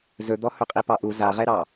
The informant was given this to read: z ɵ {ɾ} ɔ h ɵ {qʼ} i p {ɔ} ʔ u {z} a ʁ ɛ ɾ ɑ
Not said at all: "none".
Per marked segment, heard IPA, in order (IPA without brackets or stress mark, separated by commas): d̪, qʼ, ɑ, z